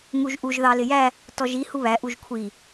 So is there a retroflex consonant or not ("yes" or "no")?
no